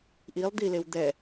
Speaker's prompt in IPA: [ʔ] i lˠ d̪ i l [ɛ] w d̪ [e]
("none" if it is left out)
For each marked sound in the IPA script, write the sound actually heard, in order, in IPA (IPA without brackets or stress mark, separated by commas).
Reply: ʔ, e, ɛ